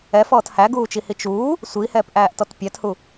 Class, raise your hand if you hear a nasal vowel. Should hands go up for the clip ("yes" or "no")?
no